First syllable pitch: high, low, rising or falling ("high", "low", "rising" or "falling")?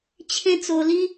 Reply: high